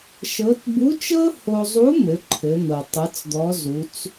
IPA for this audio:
ʃ ɤ˧˥ t b u˧˥ t͡ʃ ɤ˥ h o˧ zˤ u˧˥ m ɘ˩˧ ǃʰ ɘ˩˧ n̪ ɤ˩ tˤ ɘ˧˥ t͡s d̪ ɔ˧˥ z u˩˧ t͡s

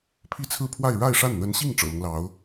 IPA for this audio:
pʰ i˥˧ t͡sʰ ɹ̩˥˧ pʰ w a˥˧ ɪ̯ ɻ a˥˧ ɪ̯ ʂ a˥˩ n n̪ ə˧˥ n ɕ i˥˩ ŋ ʈ͡ʂ ɤ̰˨˩ l ʊ˦ ŋ l ɑ˧˥ ʊ̯

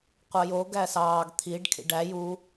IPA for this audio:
qʷ ɑ j o ɡ æ s ɑː ɡ t̪ʰ i ɖ kʰ ḭ ɖ æ j u

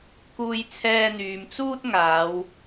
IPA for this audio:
k uː˧ j t͡sʰ ɛː˧ n̪ yː˨ m t͡s uː˥ t̚ ŋ aː˨˧ w

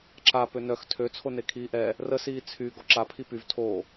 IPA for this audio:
ǁ a p ø n œ x tʰ ø t͡sʰ o n e kʰ iː ʔ ɛ | r ə s iː t͡sʰ y ɡ ɔ ǁ a pʰ i p y v tʰ o

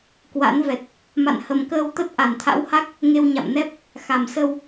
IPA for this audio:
k w a̰˧˥ n v ɛ˨˩ t̚ | m a̰˧˨ n h ə˨˩ m k əː˧ w t̪ ə˦˥ t̚ ʔ a˧˩ n t̪ʰ a̰˧˥ w h a˦˥ k̚ | ŋ e˧ w ɲ a̰˧˨ m n ɛ˦˥ p̚ | x a˧˩ m s ə˧ w

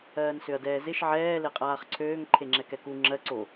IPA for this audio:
ɜː n s ø ɐ̯ d ɛː z ɪ ʃ ʕ ɛː l e qʼ aː χ ǀʰ øː ŋ ǃʰ e ŋ͡ǁ ɛ k ɛ k u ŋ͡ǁ ɜ ǀ o

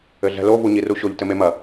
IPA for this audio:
ɘ ɮ ɛ̤ l o v u ɲ i r u ɕ o ʎ t ɘ m e m ɐ

